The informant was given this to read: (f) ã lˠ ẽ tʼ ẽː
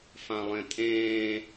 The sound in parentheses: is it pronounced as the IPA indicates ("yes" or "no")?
yes